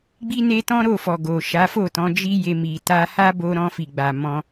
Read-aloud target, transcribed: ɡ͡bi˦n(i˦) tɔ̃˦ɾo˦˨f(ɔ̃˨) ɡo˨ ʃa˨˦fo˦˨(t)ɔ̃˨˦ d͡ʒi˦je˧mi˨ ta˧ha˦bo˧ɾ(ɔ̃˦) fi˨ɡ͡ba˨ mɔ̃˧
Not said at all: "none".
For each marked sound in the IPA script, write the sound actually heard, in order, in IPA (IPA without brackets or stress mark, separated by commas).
e˦, ɔ˨, t, ɔ̃˧